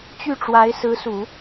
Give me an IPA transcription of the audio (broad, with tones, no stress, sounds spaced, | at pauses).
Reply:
t͡ɕ y˥˩ ʈ͡ʂ w a˧˥ ɪ̯ s ɹ̩˧˥ s u˨˩˦